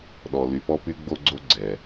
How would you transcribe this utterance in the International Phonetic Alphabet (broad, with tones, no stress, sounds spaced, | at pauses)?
ɗ ɔ˨ l y˨ p ɔ˦ p y˦ ɡ͡b o˦ ɡ͡ǀ o˦ ɡ͡ǀ ɛ˨